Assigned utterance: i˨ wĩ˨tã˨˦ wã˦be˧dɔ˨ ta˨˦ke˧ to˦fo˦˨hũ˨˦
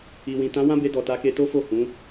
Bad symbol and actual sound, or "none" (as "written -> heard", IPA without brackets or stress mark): none